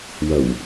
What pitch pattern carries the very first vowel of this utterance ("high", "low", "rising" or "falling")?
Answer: low